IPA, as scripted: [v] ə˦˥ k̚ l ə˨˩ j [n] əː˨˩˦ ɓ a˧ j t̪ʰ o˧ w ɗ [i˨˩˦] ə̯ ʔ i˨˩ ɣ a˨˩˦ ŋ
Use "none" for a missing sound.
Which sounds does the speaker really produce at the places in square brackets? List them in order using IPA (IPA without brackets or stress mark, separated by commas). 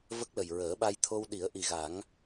v, ɹ, i˨˩˦